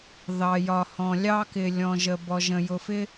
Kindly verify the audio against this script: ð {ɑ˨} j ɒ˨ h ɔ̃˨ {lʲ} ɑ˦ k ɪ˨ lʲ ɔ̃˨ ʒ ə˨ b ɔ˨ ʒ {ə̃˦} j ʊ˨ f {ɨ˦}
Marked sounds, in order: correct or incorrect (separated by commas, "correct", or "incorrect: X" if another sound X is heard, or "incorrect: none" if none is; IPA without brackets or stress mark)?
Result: correct, correct, incorrect: ə̃˨, incorrect: ɪ˦